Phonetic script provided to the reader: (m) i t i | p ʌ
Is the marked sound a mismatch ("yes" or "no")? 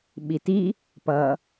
yes